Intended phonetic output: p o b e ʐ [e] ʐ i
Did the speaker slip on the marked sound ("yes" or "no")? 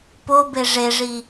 no